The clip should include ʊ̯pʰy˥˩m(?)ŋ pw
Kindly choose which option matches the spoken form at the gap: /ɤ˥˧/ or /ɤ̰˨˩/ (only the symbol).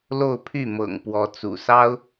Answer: ɤ̰˨˩